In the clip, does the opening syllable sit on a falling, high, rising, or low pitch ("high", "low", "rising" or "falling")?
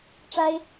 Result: high